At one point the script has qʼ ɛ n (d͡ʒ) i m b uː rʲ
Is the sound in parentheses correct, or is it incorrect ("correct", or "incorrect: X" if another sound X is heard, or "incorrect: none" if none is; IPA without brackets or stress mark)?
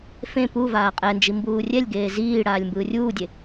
correct